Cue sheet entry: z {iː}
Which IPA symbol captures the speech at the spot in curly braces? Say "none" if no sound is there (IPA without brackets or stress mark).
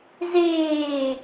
iː